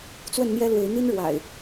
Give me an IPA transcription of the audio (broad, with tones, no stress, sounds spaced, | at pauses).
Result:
t͡s w ə˥˨ n n̪ j ɛ˦ l w e˨˦ ɪ̯ n̪ i˦ n ɻ w a̰˨˩ ɪ̯